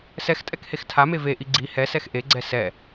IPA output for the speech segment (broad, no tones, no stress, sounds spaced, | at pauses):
s ɛ x tʼ ɛ k h e x tʰ a m e v e ʔ i ɡ͡ǀ i h ɛ s ɛ x ʔ e ɡ͡ǀ ɛ s ɛ